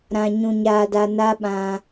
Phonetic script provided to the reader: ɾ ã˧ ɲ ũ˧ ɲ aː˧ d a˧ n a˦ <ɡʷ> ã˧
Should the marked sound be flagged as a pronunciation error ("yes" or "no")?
yes